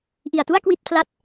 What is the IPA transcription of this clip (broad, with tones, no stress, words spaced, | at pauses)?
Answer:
ʔi˨˩a̯tu˥˩a̯ kwi˥˩t̚pʰla˦˥t̚